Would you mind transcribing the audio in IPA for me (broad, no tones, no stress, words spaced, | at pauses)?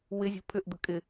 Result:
wɪzʲṳ pʰʏʔd̪ə kʼɪ